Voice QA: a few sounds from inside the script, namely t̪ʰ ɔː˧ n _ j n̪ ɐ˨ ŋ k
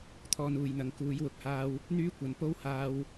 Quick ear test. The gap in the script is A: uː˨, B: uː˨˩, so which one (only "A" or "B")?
A